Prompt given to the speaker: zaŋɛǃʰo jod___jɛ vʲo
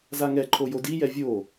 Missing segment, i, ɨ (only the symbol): i